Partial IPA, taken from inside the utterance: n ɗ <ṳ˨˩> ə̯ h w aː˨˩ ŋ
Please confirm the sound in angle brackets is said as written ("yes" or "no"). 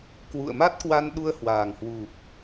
no